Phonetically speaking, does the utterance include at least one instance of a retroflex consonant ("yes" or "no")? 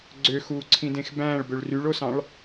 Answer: yes